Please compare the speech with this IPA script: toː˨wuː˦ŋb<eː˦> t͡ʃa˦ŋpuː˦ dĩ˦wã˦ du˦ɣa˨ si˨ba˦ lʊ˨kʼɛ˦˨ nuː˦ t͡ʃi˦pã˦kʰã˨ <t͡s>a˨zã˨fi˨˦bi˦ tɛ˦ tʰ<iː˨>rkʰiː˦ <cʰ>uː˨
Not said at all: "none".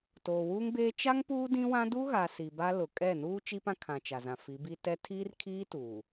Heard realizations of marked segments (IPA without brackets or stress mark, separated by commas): eː˦, t͡ʃ, iː˦, t